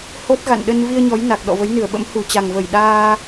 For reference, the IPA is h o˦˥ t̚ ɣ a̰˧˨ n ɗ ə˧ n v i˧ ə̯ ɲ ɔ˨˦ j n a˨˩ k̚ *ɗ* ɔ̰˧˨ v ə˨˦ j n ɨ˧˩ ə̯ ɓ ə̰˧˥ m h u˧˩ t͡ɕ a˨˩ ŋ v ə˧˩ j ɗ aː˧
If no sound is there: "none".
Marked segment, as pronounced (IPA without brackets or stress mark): ɗ